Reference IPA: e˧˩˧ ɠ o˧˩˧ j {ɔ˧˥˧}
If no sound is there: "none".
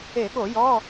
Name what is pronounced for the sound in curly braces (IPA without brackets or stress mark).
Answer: ɔ˧˥˧